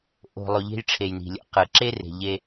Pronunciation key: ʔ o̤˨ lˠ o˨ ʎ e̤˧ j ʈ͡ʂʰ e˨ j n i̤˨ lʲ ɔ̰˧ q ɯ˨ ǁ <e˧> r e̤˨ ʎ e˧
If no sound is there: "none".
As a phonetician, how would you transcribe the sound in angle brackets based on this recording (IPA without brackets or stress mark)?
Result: e˦